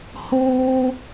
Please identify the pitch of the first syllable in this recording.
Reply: high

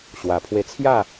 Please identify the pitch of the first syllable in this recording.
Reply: low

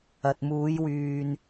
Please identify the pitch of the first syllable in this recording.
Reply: low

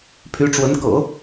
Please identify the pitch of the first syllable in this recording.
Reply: rising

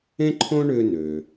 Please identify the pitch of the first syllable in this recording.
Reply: high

